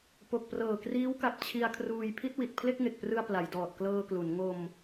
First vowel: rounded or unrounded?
rounded